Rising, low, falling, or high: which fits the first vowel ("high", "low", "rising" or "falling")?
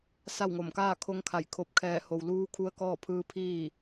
falling